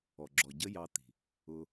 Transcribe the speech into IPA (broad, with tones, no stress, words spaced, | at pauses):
ɔ˨ɡ͡ǁɔ˨ɟə˦jɑ˧ t̪i̤˨ | ʊ˧